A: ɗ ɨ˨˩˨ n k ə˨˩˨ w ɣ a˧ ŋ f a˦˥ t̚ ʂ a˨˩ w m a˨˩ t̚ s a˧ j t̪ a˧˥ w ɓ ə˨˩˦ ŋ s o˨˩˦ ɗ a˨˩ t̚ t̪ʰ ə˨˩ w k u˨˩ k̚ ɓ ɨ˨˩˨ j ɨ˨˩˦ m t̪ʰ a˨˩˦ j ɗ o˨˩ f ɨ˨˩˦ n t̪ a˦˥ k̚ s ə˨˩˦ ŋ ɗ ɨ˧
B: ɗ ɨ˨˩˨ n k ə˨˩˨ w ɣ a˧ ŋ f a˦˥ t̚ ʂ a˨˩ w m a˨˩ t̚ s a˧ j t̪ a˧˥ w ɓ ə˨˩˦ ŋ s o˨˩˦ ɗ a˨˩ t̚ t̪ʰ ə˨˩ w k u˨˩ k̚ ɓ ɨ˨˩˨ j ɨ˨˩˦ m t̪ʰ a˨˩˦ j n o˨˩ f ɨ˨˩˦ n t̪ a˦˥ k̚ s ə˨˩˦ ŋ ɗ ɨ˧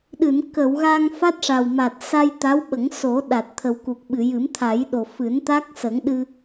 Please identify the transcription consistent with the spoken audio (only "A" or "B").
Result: A